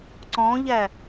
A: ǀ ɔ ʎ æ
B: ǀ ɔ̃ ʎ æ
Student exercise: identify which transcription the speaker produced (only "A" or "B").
B